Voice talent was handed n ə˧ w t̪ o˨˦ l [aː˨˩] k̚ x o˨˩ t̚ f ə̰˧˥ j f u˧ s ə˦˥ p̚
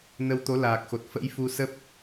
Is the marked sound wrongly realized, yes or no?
no